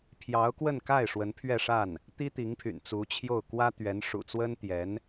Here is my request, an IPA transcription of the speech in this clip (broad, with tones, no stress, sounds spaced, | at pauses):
pʰ j ɑ˧˥ ʊ̯ k w ə˥˧ n k a˥˩ ɪ̯ ʂ w ə˧˥ n pʰ ɥ ɛ˥˧ ʂ a˥˩ n | t̪ i˥ t̪ i˧˥ ŋ pʰ y̰˨˩ n t͡s u˧˥ t͡ɕʰ j o˥˩ ʊ̯ k w ä˥ t̪ ɥ ɛ˧˥ n ʂ ṵ˨˩ t͡s w ə˥ n t̪ j ɛ˧˥ n